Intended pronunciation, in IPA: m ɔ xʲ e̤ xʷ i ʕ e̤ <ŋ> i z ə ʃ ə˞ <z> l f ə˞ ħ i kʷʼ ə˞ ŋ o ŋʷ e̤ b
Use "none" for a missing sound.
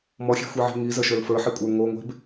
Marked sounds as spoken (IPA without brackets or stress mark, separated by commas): ŋ, none